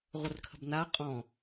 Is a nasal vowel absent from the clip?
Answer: no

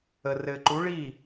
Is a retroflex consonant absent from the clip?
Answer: no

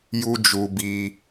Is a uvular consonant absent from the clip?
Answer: yes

